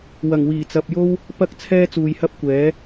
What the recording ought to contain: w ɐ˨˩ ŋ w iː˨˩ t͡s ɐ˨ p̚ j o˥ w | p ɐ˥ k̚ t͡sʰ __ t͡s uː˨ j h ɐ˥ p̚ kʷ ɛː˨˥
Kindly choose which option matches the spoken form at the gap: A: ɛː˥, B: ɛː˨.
A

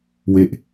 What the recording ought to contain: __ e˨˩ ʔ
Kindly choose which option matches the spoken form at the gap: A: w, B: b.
A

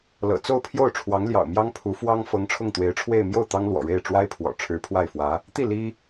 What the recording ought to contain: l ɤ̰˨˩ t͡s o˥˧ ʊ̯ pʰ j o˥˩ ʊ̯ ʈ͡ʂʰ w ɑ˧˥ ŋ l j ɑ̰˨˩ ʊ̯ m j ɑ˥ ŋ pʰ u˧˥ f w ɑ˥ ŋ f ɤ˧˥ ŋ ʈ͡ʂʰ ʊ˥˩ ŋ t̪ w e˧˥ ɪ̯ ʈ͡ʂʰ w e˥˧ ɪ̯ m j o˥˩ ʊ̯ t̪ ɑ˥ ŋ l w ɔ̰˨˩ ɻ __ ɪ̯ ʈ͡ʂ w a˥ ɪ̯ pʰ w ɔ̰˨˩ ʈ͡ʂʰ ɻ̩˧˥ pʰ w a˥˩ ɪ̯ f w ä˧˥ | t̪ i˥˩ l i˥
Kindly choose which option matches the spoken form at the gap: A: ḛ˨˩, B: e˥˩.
B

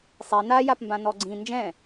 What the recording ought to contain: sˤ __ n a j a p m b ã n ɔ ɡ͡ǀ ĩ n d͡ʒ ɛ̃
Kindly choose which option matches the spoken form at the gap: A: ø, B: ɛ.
B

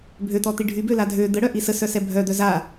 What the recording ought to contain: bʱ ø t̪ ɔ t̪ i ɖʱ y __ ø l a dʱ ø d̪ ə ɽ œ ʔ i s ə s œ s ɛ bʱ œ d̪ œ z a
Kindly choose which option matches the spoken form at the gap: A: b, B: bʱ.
A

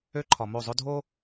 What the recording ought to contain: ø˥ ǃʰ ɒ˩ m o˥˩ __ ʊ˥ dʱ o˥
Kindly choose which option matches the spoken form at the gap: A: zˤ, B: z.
A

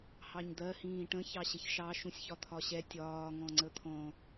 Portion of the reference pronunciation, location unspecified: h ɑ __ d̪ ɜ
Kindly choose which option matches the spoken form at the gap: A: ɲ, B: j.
A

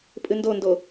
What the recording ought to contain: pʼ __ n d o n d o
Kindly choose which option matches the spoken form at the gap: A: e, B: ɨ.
B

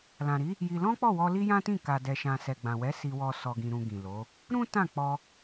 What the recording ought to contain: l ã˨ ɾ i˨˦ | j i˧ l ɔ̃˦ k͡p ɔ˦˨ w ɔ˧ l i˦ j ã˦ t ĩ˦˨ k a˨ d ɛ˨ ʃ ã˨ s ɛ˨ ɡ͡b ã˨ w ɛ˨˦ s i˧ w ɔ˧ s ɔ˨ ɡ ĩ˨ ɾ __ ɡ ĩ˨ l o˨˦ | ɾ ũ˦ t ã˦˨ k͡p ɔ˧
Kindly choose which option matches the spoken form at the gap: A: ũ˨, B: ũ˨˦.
A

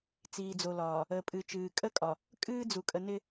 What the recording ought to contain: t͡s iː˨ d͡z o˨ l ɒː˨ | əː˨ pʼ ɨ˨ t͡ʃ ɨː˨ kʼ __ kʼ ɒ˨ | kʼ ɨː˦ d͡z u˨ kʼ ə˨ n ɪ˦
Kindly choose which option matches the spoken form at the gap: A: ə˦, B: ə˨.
A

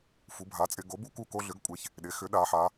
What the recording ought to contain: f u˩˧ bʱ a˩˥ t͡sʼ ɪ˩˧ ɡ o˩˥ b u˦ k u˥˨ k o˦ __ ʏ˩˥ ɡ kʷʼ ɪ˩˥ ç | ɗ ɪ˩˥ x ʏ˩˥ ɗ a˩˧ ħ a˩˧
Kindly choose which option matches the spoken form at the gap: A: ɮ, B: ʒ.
A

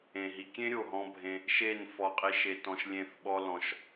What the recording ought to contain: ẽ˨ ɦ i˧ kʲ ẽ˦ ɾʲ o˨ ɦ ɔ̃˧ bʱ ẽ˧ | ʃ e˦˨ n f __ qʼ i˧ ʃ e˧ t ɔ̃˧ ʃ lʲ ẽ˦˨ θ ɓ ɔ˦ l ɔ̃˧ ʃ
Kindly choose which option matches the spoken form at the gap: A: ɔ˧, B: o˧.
A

